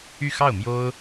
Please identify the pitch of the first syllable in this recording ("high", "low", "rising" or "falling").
falling